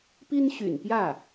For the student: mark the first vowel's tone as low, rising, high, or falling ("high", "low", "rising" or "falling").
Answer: high